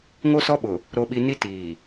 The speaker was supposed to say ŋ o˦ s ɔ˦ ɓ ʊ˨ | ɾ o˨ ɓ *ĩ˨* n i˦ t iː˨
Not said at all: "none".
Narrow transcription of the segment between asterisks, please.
i˨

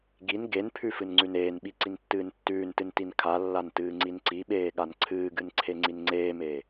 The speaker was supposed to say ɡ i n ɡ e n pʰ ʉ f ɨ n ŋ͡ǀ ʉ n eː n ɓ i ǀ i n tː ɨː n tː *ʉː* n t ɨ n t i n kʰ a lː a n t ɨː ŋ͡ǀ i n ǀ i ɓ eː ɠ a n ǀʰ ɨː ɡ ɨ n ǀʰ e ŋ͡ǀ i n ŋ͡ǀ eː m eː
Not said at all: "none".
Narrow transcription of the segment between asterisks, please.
ʉː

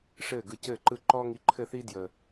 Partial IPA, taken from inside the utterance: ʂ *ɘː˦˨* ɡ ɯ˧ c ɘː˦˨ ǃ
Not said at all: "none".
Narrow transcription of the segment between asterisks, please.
ɘː˦˨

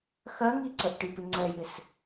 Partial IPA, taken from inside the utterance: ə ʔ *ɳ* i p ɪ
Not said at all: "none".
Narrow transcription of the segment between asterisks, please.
ʈ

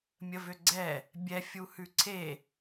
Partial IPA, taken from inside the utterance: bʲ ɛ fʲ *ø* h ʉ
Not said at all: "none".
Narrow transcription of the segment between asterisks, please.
u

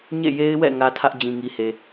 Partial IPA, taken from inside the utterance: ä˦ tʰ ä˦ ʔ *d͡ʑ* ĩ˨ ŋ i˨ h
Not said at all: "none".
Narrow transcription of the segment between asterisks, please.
d͡ʑ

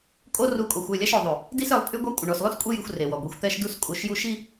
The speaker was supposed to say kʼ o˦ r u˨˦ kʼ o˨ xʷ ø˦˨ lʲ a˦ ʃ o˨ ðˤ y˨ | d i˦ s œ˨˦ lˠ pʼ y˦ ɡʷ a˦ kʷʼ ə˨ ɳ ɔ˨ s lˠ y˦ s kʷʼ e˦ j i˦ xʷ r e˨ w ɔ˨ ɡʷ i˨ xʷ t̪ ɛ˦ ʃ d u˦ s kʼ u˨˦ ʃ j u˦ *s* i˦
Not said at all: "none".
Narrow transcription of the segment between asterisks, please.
ʃ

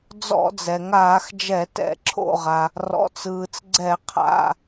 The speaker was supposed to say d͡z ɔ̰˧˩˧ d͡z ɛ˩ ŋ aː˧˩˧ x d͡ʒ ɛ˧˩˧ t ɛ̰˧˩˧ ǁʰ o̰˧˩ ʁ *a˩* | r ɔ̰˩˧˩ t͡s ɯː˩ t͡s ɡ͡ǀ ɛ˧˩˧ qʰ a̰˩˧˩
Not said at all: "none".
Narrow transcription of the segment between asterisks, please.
a˩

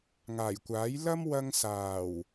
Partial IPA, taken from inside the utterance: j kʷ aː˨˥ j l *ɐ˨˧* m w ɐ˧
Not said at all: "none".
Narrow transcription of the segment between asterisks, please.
ɐ˥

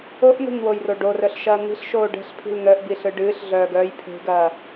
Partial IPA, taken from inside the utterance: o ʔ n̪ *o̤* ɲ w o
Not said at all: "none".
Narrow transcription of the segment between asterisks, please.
o̤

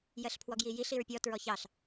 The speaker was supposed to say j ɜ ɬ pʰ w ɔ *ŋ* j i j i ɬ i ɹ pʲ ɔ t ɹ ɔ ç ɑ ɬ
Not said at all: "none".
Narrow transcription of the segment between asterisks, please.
ɡ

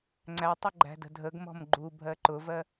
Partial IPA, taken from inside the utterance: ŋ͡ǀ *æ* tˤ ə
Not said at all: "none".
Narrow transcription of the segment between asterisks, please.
æ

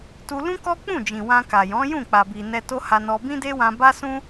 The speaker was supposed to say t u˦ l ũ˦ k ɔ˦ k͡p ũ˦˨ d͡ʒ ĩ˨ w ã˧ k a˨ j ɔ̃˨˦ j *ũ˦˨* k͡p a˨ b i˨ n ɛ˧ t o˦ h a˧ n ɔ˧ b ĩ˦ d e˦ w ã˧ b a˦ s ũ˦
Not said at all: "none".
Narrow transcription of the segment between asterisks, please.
ũ˦˨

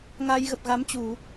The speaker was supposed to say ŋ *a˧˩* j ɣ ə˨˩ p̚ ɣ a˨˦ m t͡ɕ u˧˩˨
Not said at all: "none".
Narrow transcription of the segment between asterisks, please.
a˧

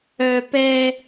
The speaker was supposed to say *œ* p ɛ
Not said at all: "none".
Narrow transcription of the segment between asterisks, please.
œ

